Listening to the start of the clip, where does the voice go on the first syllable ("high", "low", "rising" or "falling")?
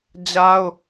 high